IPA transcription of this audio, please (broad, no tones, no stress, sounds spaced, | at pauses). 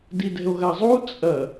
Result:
d i d ɛ̤ o̯ ɣ a zˤ u t͡sʼ ɐ